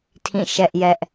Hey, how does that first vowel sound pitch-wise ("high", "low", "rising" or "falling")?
falling